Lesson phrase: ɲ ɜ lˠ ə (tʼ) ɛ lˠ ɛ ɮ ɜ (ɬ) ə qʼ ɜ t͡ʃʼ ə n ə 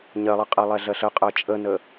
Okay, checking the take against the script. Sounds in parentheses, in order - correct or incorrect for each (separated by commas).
incorrect, correct